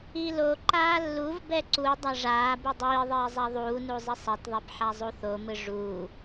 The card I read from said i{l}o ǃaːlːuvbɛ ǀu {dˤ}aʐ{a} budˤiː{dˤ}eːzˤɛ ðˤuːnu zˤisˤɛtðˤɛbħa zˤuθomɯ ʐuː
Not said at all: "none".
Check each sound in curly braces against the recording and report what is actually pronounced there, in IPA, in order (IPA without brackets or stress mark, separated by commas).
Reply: l, dˤ, aː, ðˤ